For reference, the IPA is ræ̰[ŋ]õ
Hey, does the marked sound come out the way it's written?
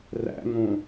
yes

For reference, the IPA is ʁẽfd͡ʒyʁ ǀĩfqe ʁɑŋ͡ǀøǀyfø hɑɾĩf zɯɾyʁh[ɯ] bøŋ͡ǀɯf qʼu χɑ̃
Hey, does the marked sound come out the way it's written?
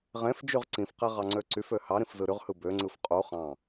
yes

